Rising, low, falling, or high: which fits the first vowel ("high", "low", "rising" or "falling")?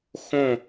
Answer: falling